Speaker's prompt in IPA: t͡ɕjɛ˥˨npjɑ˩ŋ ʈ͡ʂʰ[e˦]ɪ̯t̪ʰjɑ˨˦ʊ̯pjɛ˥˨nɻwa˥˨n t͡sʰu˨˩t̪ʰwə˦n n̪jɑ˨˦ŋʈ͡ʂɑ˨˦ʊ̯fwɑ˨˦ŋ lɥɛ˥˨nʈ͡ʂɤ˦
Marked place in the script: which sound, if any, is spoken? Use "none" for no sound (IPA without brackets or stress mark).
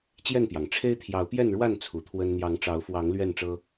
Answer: e˦